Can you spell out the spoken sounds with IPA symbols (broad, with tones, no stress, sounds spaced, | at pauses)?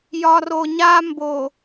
j ɒ˨ r o˨ ɲ a˦ m b o˨